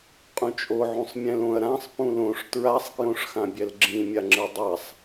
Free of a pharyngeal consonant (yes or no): no